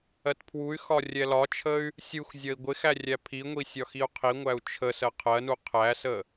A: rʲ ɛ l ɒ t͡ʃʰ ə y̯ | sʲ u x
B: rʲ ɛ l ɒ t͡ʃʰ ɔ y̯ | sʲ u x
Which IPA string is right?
A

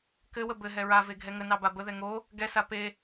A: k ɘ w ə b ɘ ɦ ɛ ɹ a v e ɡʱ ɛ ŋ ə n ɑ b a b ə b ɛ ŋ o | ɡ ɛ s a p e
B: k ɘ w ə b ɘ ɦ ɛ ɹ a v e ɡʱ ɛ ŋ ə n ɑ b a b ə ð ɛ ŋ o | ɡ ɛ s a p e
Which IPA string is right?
B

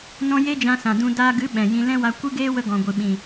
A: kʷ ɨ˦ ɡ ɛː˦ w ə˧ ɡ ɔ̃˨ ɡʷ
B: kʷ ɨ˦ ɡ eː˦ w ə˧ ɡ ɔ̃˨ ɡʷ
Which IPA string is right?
B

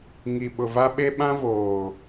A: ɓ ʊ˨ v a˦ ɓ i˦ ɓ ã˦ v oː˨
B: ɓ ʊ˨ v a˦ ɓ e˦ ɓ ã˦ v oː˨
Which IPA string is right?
B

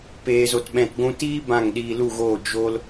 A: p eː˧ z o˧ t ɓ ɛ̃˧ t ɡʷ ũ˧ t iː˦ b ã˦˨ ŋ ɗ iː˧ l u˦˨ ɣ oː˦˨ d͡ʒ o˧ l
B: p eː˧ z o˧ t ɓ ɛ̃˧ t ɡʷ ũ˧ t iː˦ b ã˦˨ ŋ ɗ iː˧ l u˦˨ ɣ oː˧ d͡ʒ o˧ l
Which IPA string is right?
A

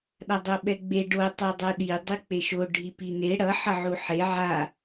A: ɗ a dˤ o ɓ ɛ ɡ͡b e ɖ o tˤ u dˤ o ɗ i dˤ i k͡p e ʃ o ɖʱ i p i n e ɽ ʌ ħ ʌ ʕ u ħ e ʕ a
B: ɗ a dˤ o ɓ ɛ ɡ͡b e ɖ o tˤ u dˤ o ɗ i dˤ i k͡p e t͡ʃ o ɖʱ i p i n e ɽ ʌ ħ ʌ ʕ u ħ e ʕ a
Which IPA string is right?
A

